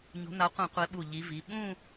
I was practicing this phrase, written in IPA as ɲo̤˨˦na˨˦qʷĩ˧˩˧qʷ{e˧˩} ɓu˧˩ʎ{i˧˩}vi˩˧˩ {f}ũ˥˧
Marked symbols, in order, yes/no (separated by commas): no, no, no